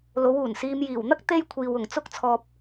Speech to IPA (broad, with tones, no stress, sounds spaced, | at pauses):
l o˨˧ w uː˨˩ n s iː˨ m j iː˨˩ w n̪ ɐ˥ k̚ t̪ e˧ j kʷʰ iː˨ w ʊ˨˩ ŋ t͡s ʊ˧ k̚ t͡sʰ ɔː˨ p̚